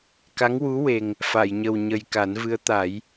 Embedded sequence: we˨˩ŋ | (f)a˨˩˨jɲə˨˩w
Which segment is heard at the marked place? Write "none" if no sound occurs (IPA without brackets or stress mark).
f